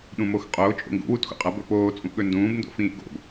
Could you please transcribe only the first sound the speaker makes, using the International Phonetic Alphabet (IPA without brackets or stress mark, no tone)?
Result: ɗ